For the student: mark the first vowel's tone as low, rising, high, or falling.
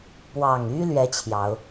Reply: low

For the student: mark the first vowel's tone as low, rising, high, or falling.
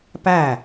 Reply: falling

